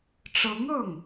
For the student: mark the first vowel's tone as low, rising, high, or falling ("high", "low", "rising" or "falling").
rising